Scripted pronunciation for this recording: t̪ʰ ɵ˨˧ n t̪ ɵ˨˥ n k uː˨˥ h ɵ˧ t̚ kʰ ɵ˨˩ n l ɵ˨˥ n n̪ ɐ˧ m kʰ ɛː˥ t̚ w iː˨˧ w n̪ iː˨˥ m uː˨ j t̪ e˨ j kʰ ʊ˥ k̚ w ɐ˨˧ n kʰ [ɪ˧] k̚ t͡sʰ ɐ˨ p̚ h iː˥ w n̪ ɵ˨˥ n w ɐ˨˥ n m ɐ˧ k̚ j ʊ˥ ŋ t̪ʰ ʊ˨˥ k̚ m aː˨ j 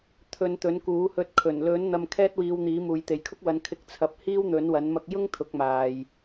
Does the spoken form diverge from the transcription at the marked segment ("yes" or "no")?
no